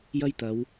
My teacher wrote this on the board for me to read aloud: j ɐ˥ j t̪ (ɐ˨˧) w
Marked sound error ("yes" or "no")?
no